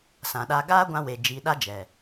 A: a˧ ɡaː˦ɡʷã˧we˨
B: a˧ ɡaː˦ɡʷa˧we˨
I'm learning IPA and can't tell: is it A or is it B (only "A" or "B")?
A